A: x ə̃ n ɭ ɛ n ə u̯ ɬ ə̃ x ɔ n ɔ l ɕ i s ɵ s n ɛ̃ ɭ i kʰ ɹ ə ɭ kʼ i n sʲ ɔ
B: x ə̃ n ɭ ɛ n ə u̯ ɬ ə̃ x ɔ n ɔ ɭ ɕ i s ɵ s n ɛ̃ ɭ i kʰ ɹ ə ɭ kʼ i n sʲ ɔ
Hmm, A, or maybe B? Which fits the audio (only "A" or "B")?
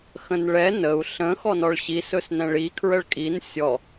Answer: B